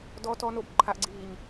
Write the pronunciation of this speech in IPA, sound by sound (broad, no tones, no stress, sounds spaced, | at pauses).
d ɔ t ɔ n o b ǃʰ a ʔ ɡ͡ǀ iː ɲ